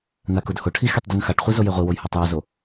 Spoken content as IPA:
n a k ʊ d h ʊ ʈʰ i x i tˤ d u n x a ʈ χʷ i z o j e ʁʷ i w o j h ɔ tˤ j u z o

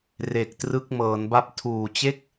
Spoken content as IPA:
r e˨˩ k̚ t r ɯ˦˥ k̚ m ɤː˩˦ n b a˥˩ p̚ tʰ uː˨˩ t͡ɕ e˥˩ k̚

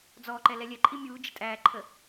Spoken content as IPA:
d͡z ɔ ǃ ɛ l ɛ lʲ ɛ ǃʼ i mʲ uː d͡ʒ ə tʼ æː ǃʰ ə

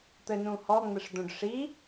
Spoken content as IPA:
t̪ ɘ n ũ h ɔ ŋ͡m ɘ ʂ d̪ õ ɖ ʂ i

